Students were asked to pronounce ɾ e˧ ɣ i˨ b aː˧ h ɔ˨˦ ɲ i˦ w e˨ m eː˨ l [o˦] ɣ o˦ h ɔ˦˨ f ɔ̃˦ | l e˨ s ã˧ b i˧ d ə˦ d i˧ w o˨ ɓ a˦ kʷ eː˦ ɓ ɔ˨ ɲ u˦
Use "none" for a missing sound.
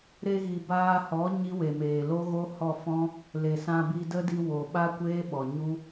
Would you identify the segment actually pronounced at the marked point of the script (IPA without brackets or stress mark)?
o˦